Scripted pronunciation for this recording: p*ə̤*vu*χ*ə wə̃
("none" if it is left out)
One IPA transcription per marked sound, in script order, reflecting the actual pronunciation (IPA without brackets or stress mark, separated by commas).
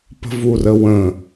ə̤, r